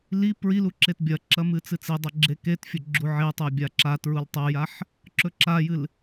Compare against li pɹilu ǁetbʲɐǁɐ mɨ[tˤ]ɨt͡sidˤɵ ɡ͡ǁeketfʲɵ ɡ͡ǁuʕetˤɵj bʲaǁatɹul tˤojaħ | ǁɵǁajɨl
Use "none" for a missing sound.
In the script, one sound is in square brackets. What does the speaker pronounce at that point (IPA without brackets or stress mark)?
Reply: t͡s